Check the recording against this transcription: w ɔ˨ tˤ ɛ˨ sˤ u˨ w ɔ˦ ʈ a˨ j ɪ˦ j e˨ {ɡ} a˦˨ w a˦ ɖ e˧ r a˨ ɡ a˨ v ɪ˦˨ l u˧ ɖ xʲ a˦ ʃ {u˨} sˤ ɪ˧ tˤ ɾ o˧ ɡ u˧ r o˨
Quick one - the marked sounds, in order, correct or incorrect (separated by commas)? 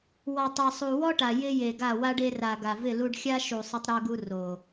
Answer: correct, correct